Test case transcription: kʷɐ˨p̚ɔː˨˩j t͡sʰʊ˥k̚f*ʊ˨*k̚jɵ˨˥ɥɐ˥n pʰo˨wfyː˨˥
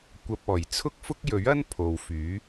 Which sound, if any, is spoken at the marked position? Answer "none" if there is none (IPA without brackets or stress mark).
ʊ˥